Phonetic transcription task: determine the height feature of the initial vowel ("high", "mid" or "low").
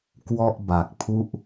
mid